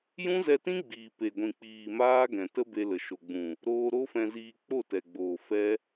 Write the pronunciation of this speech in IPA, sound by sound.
jũ˦zɛ˧tĩ˦ɡ͡biː˨ pe˨ɡʷĩ˨k͡piː˨ maː˦ ɡɛ̃˨tə˦be˧lə˨ ʃo˨ɡ͡bũ˨ | ɾoː˧ ɾo˦fɛ̃˧ziː˧ k͡po˦˨tɛ˨ɡ͡boː˨ fɛ˦

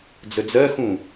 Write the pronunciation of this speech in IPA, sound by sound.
d͡zəd͡zɜxũ

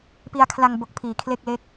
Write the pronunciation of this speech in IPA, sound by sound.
pi˧a̯kʰla˧ŋbo˨˩k̚ pʰiː˨˩kʰle˥˩k̚le˦˥k̚

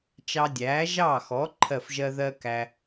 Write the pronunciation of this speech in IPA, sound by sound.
t͡ʃɑ˧dʲæː˩˥ʒɑː˥˩xɔ˩˥ ǃʰɜ˥˩fʒɜ˥ ðɜ˥ kæ˧

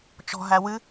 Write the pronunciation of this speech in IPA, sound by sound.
t͡ʃɔ̤ɦæ wɨ

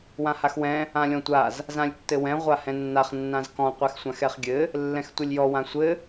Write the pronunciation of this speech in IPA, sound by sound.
wãhaxwɛ̃ | ãlʲɔ̃tʷaz | zãlʲtːɘwɛ̃ ʁʷahɛ̃nːaχ nːãzkɔ̃ qʷɛxsʷãxɛχɡʲɘ | lːɛ̃xtʷɘlʲjɔ wãsʷɘ

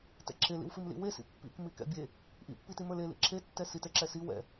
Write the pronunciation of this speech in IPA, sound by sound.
tɛ̰ǁʰelḭwfim lḭwesḭ pːḭk mikɛ̰bʲe | ʔḭpːiti mə˞lelḭ ǁʰetːɛ sit ɛǁɛsi wɛ̰

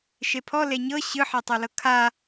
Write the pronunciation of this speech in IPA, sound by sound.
ʃepʰɔ leɲɤ ɕɯħetˤɤlɤ kʰa

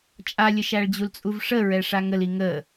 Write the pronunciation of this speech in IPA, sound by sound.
t͡ʃʼalʲəʃæɭd͡ʑul t͡sʼuvʂəɹɛ ʂaŋəli ŋə

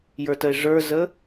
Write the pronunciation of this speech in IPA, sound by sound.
jə˞təe̯ʐə˞zə

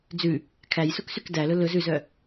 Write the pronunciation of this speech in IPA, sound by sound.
d͡zʉ | kʰæjsuksyk dælɵ lɵz ʉzœ

